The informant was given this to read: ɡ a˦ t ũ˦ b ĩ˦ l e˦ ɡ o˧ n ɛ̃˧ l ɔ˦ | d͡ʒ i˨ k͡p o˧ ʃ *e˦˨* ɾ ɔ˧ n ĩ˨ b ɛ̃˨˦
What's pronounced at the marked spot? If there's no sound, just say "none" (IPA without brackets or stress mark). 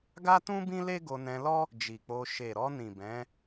e˨